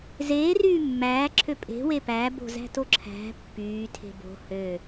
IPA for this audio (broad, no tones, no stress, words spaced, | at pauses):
zeːryː mːæːǁʰø pʼe̤we pæbo̤zæ̤to ǁʰæ̤ pːyːtʰe̤ bo̤ hø